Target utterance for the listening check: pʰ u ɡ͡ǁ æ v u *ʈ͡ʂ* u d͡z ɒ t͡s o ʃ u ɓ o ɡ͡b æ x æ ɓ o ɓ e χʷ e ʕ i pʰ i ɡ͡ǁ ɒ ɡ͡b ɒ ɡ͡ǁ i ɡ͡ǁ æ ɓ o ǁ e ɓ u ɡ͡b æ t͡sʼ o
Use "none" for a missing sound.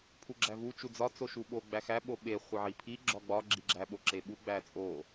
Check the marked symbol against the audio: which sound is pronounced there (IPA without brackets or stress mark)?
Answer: t͡ʃ